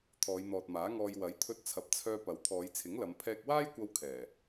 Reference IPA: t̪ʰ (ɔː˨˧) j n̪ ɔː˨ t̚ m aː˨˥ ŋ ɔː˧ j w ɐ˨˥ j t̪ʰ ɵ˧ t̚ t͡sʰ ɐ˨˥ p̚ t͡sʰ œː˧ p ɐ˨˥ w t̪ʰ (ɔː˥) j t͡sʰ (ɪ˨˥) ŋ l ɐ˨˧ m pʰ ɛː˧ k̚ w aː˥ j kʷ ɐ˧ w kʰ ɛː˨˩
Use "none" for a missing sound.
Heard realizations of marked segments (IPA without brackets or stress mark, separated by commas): ɔː˨˧, ɔː˨˧, ɪ˨˥